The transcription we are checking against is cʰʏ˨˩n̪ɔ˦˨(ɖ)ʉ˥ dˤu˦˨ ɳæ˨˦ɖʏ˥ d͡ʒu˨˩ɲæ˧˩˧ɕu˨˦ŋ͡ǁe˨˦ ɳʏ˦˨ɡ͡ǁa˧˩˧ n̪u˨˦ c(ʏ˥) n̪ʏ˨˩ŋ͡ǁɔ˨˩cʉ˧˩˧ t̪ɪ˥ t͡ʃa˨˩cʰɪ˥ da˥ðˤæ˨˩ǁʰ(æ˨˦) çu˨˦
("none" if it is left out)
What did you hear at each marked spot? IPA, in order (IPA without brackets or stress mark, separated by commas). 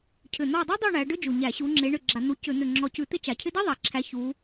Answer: dˤ, ʏ˧˩˧, æ˨˦